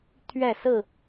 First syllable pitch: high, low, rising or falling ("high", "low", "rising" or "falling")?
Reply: falling